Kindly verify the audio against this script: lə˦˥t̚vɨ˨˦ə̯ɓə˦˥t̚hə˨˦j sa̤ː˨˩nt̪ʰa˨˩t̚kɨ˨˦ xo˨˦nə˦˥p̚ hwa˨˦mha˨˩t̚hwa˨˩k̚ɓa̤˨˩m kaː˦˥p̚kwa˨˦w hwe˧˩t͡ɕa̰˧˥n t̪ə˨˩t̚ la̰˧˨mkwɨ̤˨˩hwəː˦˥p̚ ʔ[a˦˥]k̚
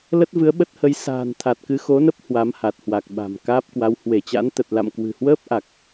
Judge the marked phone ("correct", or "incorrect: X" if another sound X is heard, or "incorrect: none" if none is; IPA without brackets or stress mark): incorrect: a˨˩